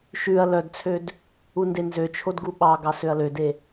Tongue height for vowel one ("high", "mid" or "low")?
high